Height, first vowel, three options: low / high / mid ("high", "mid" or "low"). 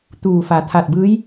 high